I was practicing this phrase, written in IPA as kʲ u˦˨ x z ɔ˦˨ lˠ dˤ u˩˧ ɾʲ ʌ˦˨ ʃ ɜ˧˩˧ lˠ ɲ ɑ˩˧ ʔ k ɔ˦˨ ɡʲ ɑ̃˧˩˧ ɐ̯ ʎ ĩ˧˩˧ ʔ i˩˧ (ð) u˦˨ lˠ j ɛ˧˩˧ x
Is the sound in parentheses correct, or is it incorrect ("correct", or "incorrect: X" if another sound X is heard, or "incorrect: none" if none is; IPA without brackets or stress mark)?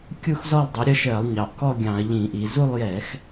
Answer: incorrect: z